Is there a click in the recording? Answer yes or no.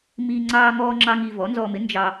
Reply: yes